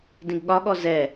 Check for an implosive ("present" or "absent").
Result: present